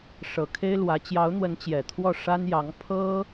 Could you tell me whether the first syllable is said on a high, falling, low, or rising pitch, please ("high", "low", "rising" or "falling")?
low